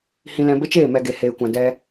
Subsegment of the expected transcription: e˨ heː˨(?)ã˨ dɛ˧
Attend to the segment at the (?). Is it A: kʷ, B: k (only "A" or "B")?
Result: A